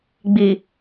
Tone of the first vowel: low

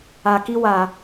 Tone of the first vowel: low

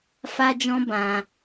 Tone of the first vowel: high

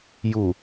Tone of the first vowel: low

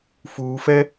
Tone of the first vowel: low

